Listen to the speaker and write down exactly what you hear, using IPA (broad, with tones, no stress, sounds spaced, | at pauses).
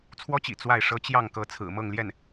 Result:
t͡sʰ w ɔ˥ t͡ɕ ḭ˨˩ t͡s w a˥˩ ɪ̯ ʂ ɤ˥ t͡ɕ j ɑ˥˩ ŋ k ɤ˧˥ t͡sʰ ɹ̩˨˩ m ɤ˥˧ ŋ l j ɛ˥˩ n